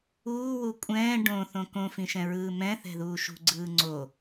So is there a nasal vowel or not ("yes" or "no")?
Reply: yes